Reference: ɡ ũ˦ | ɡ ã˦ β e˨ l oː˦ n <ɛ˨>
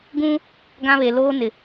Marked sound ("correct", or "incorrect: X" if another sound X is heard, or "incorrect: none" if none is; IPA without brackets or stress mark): incorrect: ɪ˨